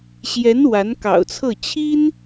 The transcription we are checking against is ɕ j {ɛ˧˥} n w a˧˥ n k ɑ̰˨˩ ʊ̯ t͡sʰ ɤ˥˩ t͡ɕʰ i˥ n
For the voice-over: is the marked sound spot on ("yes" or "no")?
yes